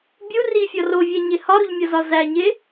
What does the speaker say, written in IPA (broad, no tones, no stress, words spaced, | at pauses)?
bʲu rifʲɒ rovʲæɲe hɒɾuʎmʲɒzɒ zæɲe